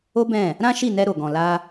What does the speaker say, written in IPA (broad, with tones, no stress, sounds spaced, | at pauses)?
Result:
o˦ b ɛ̃˦˨ | ɾ ã˦ ʃ i˦˨ n ɛ˧ ɾ o˨ ɡ ɔ̃˨ l a˧